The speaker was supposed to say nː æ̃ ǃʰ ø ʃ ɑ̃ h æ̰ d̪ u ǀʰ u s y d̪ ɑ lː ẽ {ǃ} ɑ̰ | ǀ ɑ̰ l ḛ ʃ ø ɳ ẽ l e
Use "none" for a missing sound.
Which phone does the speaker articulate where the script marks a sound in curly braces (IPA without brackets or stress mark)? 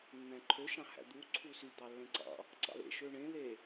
ǀ